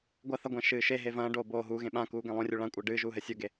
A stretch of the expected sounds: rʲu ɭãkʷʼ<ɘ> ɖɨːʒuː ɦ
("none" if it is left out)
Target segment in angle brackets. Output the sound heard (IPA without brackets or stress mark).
ɘː